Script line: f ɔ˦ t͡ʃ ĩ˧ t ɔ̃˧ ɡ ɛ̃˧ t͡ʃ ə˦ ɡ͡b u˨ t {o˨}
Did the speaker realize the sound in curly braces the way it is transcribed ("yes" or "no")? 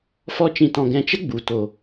yes